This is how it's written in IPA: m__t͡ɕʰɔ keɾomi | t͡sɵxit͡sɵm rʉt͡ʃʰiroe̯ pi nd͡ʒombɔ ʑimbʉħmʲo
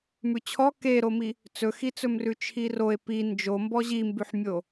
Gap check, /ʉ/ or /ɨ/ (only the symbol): ʉ